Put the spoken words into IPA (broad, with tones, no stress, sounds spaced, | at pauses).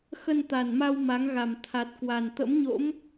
x ə˧ n t̪ a˨˩ n m a˧ w m a˨˦ ŋ ɣ a˨˩ m t̪ʰ a˨˩ t̚ k w a˨˩ n t̪ ə̰˧˥ m ɲ o̰˧˥ m